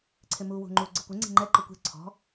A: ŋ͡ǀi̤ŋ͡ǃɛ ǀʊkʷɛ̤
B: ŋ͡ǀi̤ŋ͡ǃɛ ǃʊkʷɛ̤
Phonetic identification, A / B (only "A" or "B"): B